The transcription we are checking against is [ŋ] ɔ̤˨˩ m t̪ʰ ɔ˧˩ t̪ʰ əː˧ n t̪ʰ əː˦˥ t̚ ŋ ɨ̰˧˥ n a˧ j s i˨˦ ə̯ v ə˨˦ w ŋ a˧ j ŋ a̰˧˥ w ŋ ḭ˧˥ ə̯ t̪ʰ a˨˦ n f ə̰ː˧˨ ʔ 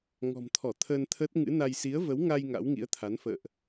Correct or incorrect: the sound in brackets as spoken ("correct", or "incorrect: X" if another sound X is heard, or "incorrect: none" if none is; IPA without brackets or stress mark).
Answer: correct